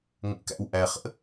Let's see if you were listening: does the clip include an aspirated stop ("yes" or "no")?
no